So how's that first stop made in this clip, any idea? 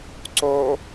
click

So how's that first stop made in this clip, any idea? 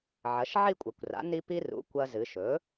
ejective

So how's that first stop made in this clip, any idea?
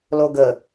plain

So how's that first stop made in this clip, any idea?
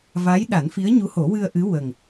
implosive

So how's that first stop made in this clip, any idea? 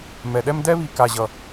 implosive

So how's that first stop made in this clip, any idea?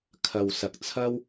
aspirated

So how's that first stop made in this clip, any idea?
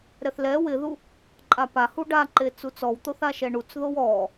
click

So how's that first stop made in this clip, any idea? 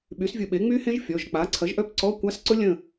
implosive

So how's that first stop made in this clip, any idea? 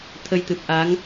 aspirated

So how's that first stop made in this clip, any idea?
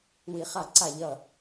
click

